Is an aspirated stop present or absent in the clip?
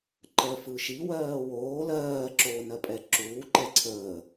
present